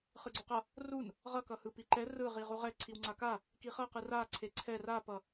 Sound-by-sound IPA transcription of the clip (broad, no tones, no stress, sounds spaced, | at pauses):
χ ɯ ɡ͡ǀ o q ʌ | r u n | ʁ ʌ k ʌ h ɯ p i ǃ ɛ r ɯ ʁ i ʁ u ʁ ɛ ǀʰ i w ŋ͡ǀ a k a | k i χ ʌ q ɯ r a ǀʰ e ǀʰ ɛ r a p ʌ